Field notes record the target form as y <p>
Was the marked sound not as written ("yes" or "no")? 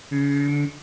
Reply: yes